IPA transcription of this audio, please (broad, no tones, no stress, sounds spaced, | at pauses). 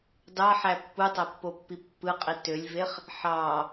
d ɑ ħ æ pː u tˤ æ pː o pː i pː ɯ qʼ i t ø lʲ v e χ | ħ ɑ